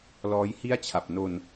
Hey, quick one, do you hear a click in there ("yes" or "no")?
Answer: no